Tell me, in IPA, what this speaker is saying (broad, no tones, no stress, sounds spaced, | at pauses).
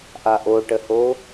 ʔ a ʔ o ʈ ə h o